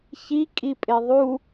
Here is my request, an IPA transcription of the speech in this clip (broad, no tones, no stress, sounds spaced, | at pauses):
ç i kʼ i pʼ e ðˤ u